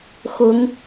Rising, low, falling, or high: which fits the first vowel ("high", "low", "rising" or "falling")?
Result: rising